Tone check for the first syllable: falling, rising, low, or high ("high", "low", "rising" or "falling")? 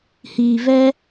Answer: low